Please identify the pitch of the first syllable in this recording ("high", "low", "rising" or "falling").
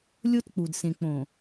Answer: high